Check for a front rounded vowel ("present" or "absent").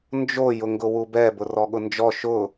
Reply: absent